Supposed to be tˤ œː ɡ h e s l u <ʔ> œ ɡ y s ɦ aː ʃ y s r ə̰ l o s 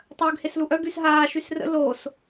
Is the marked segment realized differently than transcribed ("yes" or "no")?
no